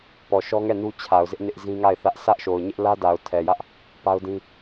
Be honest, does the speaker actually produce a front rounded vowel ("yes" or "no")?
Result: no